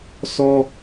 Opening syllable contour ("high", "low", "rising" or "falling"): high